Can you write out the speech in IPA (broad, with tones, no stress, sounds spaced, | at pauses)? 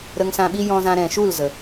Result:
ɾ ə˧ ŋ s ã˧ ɓ i˦ j ɔ̃˧ z ã˧ ɾ ɛ̃˨ ʃ u˦˨ l z ə˨